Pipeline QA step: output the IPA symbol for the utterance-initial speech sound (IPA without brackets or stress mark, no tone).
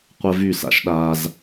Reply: qʷ